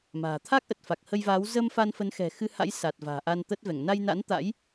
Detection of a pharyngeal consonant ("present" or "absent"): absent